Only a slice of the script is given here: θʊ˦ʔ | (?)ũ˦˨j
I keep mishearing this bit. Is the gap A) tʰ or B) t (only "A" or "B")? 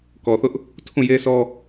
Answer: A